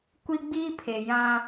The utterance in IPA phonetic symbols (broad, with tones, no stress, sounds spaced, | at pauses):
kʷ i˦ ɡ͡b iː˦ pʰ e˨ j ã˦